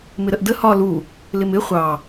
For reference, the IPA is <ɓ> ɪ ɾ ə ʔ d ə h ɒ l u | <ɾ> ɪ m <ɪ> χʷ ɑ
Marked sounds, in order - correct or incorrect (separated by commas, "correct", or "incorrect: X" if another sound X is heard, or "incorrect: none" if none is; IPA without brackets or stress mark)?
incorrect: m, incorrect: l, correct